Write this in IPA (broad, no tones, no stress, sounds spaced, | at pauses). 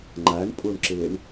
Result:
ŋ͡ǃ a ɳ pʼ u ɳ ǁ e ɳ